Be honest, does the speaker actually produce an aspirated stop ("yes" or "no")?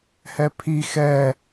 yes